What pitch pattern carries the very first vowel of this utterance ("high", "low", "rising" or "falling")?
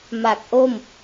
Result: low